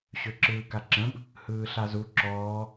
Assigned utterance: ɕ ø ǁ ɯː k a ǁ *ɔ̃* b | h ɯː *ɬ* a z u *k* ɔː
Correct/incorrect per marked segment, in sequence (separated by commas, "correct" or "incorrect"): incorrect, correct, incorrect